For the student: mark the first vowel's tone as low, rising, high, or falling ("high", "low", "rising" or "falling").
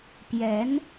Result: rising